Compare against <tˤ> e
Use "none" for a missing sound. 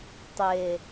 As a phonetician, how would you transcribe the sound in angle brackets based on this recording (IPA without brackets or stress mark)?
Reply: tˤ